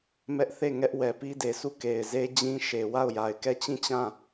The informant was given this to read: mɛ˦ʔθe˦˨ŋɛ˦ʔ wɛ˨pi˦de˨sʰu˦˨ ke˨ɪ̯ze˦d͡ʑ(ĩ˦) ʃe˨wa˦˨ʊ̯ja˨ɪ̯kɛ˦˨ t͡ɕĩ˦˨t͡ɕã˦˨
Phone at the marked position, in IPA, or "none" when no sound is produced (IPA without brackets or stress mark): ĩ˦